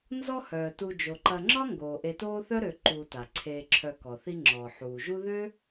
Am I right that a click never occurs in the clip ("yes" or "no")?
no